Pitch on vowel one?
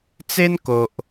high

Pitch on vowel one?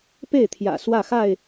falling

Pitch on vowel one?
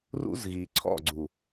high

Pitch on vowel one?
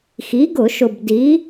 rising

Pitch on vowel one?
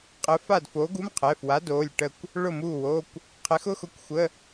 rising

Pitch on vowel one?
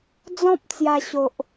high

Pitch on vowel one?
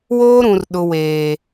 high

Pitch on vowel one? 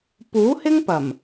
rising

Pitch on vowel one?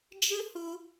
high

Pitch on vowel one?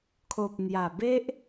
low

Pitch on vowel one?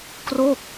falling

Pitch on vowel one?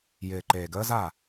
low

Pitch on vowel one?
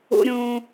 high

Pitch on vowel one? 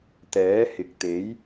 rising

